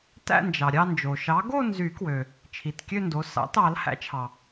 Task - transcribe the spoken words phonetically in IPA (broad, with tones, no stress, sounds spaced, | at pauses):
t æ̰˥˧ n d͡ʒ ɑ˩ ɾʲ ɑ˥˧ n d͡ʒ o˩ ʃ ɑ˨˥ ɡ o˥˧ n z y˨˩˦ k w ø˩ | t͡ʃʰ i˩˧˩ t kʲ ø˥˧ n d o˩˧˩ s ɑ̰˨˥ t ɑ˨˩˦ l h æ̰˨˥ t͡ʃʰ ɑ˩